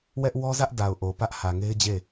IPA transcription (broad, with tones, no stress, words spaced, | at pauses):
wɛ˦ʔwɔ˦zä˦ʔ da˨ʊ̯ʔo˨ pä˦ʔhä˨ŋe˦ɪ̯d͡ʑe˦˨